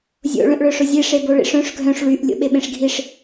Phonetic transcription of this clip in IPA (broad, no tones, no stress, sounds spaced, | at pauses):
zʲ o̰ ɭ œ̃ ʔ ɭ œ ʂ ʊ zʲ e ʂ e b o ɭ ḭ ʂ œ̃ ʂ ɡʱ œ̃ ʂ ɭ y ʔ lʲ o̰ ɓ e ɓ ẽ ʂ ɡʱ i ʂ